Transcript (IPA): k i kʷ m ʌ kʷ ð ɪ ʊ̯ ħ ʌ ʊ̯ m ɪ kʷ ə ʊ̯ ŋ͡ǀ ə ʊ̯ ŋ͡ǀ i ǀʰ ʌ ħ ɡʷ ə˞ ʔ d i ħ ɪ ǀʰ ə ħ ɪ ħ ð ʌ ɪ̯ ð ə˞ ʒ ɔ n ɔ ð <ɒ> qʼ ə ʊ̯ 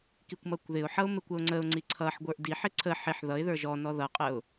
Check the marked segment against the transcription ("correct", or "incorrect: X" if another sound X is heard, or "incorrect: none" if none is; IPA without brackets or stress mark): incorrect: ʌ